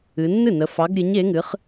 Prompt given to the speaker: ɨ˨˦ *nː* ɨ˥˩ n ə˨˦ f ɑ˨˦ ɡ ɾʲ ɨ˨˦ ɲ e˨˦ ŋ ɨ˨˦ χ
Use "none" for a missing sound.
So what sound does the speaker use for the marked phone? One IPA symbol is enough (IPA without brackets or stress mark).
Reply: nː